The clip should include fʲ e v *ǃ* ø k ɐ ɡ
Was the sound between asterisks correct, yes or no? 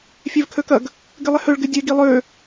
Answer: no